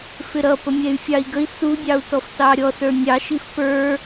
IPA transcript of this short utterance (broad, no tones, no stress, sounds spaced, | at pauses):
f ɪ ɾ ʌ p ə mʲ ɛ y̯ fʲ ɑ i̯ ɡ ə i̯ s u dʲ ɑ u̯ t ɔ f t ɑ ɾʲ ɔ s ə˞ nʲ ɑ ʃ i f p ə˞